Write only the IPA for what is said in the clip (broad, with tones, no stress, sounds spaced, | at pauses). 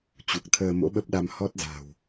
t͡ɕ u˨˩ k̚ t̪ʰ əː˧ m o̰˧˥ ɓ ə˦˥ p̚ ɗ a˧ m h ɔ˦˥ t̚ z a̤˨˩ w